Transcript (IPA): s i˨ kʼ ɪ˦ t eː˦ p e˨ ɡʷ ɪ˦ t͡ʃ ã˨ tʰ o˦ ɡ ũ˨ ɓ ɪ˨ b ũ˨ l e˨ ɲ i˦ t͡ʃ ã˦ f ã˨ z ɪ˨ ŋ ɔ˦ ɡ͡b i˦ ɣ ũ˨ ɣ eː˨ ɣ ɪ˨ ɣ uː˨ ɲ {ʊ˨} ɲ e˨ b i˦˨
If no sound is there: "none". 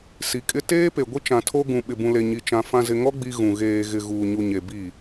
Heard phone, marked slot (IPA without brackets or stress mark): u˨